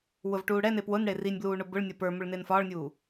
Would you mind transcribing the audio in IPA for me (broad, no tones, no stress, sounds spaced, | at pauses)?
w ʊ v ʈ uː ɽ ɛ n e p w ʊ n ɽ e r i nʲ b l uː ɳ ʊ b ʊ ɭ nʲ ʌ p ə˞ m ʊ ɭ n e n f ɒː ɭ nʲ uː